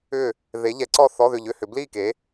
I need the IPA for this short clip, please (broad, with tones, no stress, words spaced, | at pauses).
ʏ˦˨ | ðe˨˦ ʎɛ˨˦ǀɔ˦˨ θɔ˧˥˧ðʏ˦˨ʎʏ˧˥˧hʏ˨˦ bli˦˨ke˨˦